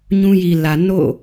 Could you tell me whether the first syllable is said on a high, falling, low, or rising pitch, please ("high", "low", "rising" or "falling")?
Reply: high